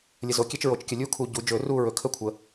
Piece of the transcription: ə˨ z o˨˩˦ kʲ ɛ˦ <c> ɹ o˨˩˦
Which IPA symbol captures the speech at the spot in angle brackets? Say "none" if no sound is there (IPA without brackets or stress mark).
t͡ʃ